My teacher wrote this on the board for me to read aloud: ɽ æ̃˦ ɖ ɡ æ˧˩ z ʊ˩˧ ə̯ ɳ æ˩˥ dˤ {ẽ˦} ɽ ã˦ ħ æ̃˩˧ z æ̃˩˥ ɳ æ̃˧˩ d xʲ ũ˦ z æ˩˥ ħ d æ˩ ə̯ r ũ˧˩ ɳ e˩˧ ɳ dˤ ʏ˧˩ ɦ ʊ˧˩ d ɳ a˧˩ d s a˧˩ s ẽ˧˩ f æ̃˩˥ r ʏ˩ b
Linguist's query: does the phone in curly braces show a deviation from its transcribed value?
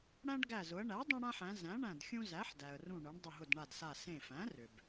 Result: no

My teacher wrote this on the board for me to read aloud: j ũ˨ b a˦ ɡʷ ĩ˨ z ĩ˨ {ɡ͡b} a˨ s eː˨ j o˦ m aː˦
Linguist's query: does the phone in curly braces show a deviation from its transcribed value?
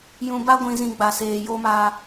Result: no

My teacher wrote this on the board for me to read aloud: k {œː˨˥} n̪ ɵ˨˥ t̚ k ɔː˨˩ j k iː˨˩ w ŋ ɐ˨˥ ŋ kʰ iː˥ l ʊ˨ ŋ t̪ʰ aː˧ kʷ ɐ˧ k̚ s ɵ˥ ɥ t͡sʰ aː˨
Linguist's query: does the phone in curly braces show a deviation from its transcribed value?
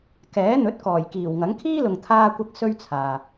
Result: yes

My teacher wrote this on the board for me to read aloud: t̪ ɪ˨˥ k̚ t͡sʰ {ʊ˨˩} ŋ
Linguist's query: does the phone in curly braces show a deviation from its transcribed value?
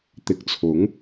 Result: yes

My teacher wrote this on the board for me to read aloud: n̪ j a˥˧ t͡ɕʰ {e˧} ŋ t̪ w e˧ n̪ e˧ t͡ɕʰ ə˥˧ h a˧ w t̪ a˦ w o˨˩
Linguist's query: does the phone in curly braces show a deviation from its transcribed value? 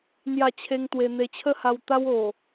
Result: yes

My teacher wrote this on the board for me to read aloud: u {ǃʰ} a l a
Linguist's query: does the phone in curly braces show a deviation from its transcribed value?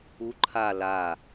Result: no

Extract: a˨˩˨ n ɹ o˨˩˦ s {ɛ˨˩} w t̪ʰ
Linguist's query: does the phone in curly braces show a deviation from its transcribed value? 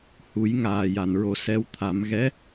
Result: yes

